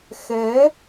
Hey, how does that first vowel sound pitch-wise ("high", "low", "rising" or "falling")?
rising